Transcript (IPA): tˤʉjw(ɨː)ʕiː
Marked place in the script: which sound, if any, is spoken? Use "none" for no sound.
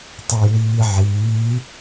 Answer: iː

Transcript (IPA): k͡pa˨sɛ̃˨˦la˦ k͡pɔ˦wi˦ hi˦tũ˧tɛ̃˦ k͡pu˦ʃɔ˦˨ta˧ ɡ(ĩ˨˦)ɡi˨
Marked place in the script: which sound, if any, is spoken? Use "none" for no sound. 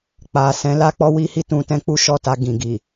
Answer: ĩ˨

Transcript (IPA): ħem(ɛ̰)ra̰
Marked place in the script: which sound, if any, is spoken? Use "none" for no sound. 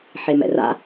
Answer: ɛ̰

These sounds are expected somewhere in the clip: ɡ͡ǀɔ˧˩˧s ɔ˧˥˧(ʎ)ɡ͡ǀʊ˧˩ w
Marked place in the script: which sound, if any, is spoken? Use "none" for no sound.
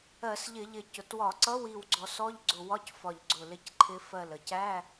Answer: ʎ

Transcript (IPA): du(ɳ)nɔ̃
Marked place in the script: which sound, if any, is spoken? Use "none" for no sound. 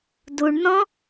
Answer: ɳ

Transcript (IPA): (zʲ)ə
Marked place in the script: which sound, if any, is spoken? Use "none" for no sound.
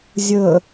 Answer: zʲ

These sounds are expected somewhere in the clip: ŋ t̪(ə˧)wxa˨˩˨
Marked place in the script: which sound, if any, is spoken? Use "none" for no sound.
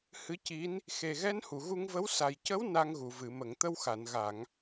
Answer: ə˧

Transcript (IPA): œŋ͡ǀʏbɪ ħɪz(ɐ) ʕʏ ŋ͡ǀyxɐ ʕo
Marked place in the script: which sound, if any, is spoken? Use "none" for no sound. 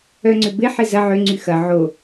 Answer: ɐ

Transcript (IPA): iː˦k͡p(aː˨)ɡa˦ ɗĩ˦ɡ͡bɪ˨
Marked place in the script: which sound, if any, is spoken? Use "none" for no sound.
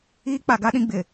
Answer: a˨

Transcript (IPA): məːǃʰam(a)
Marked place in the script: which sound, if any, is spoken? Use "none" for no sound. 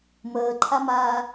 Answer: aː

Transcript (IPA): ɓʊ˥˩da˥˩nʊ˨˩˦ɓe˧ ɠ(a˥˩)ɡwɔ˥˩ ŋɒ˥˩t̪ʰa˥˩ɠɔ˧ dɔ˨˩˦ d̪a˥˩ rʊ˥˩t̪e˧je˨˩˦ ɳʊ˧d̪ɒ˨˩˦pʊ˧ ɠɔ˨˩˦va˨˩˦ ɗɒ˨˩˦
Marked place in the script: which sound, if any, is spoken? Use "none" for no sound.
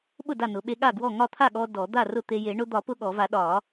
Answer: a˥˩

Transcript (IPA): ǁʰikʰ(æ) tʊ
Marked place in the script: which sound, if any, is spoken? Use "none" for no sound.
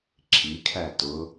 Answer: æ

